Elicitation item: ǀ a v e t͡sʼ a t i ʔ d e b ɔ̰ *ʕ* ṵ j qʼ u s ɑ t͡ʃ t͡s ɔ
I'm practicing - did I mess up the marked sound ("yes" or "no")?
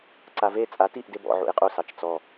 no